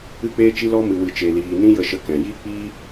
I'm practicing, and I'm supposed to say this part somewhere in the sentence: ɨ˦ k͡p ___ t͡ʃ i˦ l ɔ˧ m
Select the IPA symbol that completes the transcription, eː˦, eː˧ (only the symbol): eː˦